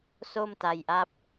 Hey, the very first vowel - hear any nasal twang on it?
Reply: no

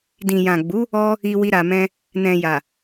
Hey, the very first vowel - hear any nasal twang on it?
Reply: yes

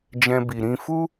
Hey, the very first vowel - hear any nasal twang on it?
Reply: yes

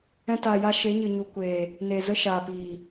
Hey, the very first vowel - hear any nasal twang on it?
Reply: yes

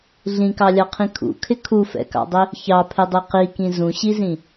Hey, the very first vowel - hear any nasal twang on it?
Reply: yes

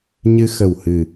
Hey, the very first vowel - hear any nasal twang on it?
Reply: no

